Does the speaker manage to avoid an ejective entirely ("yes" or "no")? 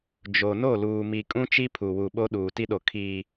no